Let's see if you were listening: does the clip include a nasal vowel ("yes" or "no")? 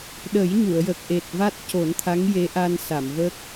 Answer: no